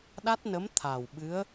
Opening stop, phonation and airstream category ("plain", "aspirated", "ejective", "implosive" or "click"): implosive